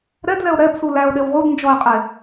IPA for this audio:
ɾ ɛ d l ɛ o̯ ɾ ɛ b s u l æ o̯ ɗ e w ʁ u d n d͡ʒ ɔ e̯ qʼ e

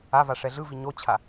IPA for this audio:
a v a ʂ ɛ ɮ ɯ v i ɲ o t͡ɕʰ a

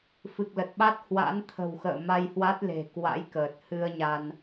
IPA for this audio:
f ɨ˨˩ k̚ l ə˨˩ t̚ ɓ a˦˥ t̚ h w a̰˧˥ n t̪ʰ ə̤˨˩ w x ə̰ː˧˨ m a˧ j h w a˦˥ t̚ l e̤˨˩ k w a̰˧˥ j k əː˨˩ t̚ h ɨ˧ ə̯ ɲ a˧ n

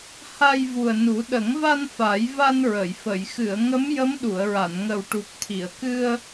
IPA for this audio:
h a˧ j v u˨˩ ə̯ n u˨˩˦ ɗ ə˨˩˦ ŋ v a˧ n f a˨˩˦ j v a˧ n ɹ ə˨˩˨ j f ə˨˩˨ j x ɨ˨˩˨ ə̯ ŋ ə˧˥ m j ə˧˥ m ɗ u˨˩˨ ə̯ ɹ a˨˩˨ n ŋ ə˨˩ w ʈ u˨˩ k̚ t̪ʰ i˨˩˨ ə̯ k ɨ˧ ə̯

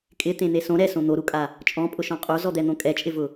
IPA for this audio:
kʼ ɪ t̪ ẽ n̪ e s õ ɾ ɛ s õ n̪ o ɾ u kʼ a | t͡ʃʼ ɔ̃ pʼ ʊ ʃ ɔ̃ qʼ o z ɔ d̪ ɛ n̪ õ kʼ ɛ t͡ʃʼ ɪ v ʊ

